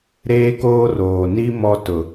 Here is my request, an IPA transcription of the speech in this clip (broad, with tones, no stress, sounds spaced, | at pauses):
ɾ eː˦ k oː˦ r oː˨ n i˦ m ɔ˦ t ʊ˨